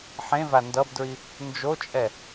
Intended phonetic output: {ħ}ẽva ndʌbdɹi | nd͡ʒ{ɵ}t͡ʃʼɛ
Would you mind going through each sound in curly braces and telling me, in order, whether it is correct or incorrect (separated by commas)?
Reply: correct, incorrect